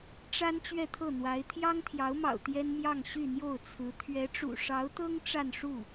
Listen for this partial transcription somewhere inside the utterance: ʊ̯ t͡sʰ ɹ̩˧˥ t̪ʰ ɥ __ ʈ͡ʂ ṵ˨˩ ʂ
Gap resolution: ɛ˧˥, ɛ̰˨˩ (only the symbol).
ɛ˧˥